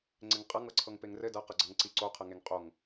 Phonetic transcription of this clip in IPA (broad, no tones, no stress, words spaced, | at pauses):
ŋ͡ǀɪŋqʼʌŋ ɤǀʰɤŋpeŋrɘ dʌ qʌɡ͡ǀʌŋǀiǀo qʰɤŋeŋqʼoŋ